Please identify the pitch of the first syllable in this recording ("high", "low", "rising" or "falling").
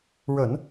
low